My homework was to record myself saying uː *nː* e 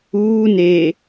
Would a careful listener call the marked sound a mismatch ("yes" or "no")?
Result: yes